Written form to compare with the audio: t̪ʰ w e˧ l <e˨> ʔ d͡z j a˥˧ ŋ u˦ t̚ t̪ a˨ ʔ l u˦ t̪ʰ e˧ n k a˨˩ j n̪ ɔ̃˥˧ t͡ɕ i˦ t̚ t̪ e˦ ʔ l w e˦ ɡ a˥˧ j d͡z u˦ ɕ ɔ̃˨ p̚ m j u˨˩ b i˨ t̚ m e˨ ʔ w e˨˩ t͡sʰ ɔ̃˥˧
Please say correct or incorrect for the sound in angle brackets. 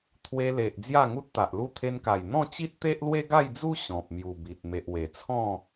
correct